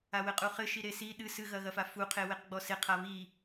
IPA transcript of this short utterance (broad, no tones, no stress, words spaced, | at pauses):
awɘqʼuχɘ ʃiɾesi ɗɨs ɨɣɐɣɐfa fuqʰeweqɡ͡bɔ seqʰa βi